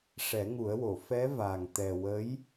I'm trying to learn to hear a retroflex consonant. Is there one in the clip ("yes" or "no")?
yes